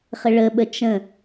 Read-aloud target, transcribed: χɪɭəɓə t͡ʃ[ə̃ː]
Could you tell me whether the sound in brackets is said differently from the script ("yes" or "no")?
yes